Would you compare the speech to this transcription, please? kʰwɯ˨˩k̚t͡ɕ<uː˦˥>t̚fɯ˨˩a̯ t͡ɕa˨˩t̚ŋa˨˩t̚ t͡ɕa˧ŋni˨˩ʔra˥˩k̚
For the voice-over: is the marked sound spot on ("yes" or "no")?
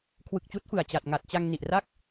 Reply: yes